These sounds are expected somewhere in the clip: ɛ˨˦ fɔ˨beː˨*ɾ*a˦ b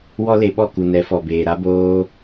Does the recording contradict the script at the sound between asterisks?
no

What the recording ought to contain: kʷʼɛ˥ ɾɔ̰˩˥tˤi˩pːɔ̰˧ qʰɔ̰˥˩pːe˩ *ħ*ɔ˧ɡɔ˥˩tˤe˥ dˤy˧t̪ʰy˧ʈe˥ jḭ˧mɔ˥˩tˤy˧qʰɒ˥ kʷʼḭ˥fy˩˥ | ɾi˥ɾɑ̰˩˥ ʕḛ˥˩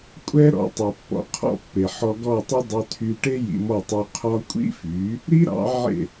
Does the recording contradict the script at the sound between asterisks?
no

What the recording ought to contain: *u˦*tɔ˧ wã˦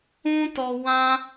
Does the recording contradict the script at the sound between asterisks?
yes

